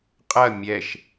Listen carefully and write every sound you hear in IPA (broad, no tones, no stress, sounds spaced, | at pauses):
qʼ ɐ mʲ ɛ ʃ